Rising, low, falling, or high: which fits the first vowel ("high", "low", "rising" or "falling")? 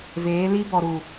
rising